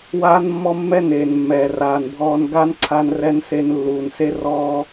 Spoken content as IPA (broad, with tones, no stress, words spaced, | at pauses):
waː˦nmːɔ˦mːɛ˦ neː˨nmːɛː˨raː˨nbʱɔː˧n ɡa˦nǀʰa˧n rɛ˧n se˧nlːuː˨nse˦ rɔː˧